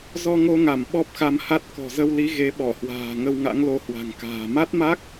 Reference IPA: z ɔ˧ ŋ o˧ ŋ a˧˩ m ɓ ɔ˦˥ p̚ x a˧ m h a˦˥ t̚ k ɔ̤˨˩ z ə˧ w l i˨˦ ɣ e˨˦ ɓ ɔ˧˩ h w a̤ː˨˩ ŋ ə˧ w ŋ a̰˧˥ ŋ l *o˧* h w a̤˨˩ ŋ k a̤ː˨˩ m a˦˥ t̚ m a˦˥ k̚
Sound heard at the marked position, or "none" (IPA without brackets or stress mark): o˧